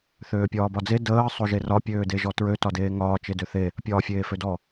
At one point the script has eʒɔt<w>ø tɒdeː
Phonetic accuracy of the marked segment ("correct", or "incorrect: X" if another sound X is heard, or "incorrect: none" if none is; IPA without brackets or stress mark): incorrect: ɹ